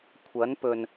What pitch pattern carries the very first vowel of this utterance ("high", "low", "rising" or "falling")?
rising